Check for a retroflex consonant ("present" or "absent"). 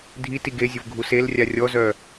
absent